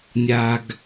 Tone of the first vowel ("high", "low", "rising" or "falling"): low